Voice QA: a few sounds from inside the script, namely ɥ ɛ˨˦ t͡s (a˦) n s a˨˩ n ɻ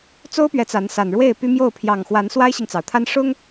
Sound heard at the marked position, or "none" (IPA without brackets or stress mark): a˨˦